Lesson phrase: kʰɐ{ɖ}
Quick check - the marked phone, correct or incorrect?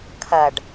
correct